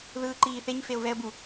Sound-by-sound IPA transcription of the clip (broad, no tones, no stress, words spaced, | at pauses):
ðɯːǃiːθeɲ feʊ̯vɛə̯bu